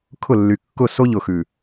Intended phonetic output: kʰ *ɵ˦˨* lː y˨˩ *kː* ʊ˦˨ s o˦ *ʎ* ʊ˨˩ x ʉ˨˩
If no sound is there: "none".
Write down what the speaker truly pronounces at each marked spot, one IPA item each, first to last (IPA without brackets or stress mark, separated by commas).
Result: ʊ˦˨, kː, ʎ